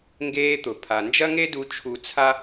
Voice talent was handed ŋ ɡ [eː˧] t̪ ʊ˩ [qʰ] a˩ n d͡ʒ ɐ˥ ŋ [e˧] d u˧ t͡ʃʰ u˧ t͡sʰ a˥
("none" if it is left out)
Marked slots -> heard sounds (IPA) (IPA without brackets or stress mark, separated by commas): eː˧, pʰ, e˥